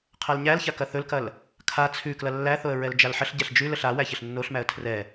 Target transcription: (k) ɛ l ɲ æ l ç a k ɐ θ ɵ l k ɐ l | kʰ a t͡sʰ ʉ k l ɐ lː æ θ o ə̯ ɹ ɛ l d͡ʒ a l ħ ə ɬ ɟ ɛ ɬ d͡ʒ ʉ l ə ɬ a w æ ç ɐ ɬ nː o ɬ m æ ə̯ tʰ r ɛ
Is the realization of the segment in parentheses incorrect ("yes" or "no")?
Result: yes